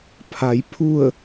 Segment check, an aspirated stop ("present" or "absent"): present